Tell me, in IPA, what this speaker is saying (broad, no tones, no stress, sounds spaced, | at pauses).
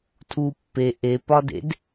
tʰ u pː e ʔ e p ɒ d ḛ d